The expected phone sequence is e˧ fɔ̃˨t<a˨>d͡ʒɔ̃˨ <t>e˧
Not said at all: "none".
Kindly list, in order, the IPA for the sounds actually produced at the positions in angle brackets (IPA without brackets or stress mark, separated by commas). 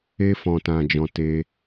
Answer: ã˨, t